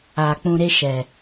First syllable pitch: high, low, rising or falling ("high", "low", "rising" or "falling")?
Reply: low